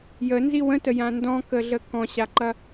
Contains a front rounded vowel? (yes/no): no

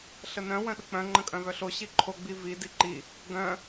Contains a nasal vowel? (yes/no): yes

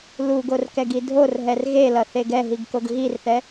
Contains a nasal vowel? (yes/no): no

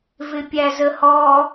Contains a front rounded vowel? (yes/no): no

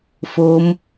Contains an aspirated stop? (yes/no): no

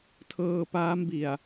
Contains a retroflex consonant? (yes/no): no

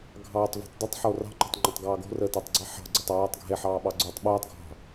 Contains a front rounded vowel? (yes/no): no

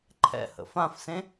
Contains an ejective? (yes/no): no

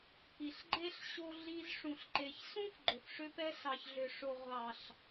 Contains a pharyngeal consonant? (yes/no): no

